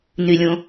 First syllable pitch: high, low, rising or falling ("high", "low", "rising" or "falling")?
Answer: low